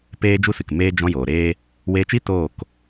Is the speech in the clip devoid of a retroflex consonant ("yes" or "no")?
yes